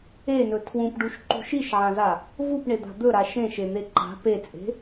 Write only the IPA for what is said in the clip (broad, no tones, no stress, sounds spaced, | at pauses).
e n ɵ tʰ w ũ p ɖ u ʃ ǃ ṳ ʃ i ʃ ʕ ã z a | v u p ɳ e d̪ a̤ d̪ ɵ ɾ a ʃ ẽ ʃ e n̪ e ǃ a̤ p e t͡sʼ e̤